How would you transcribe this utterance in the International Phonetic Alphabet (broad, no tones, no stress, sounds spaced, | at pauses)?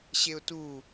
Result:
ɕ e ʊ̯ t u